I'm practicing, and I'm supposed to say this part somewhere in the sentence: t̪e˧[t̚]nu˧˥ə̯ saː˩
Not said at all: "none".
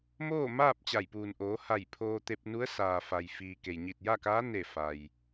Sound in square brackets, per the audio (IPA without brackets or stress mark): p̚